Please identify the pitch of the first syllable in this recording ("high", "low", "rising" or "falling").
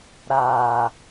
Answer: low